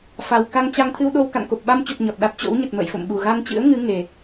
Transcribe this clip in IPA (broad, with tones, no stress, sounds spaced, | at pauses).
f a˨˩ w k a˧ ŋ t͡ɕ a˧ ŋ t̪ʰ ɨ˧ w ɗ o˧ w k a̰˧˨ n k o˨˩ p̚ ɓ a˧ m t͡ɕ u˨˩ t̚ ɲ ɔ˨˩ t̚ ɗ a˦˥ t̚ t͡ɕ o̰˧˥ w ɲ ə˨˩ t̚ m ə̰ː˧˨ j f o̰˧˨ m ɓ u˨˩ ɣ a˧ n t͡ɕ ɨ̰˧˥ ə̯ ŋ ɨ˨˦ ŋ e˨˩